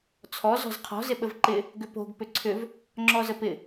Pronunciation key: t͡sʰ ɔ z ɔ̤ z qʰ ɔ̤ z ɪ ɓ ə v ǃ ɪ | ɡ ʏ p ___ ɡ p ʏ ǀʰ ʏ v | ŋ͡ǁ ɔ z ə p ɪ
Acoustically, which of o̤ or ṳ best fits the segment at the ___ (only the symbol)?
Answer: o̤